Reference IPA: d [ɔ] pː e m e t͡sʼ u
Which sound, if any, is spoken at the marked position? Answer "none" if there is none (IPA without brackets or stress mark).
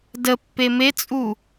ə